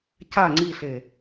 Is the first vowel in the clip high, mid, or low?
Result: low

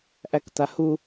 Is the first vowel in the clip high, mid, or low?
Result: low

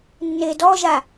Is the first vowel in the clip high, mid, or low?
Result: mid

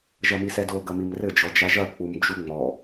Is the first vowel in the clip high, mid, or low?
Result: low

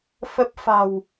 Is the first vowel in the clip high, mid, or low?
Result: mid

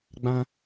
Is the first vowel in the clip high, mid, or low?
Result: low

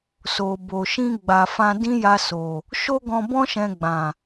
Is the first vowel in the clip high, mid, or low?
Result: mid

